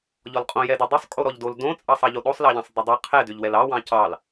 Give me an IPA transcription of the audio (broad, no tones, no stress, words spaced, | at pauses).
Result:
ʎɔlqʼõ jɛdʏ dˤʏsˤkʼo ɾɔʎdol dõt͡sʼɑsˤɑʎo ɗosˤlɑʎɑ̃sˤ dˤʏdˤɑ qʰɛdʏʎwɛl ɑwɑ̃ cɑl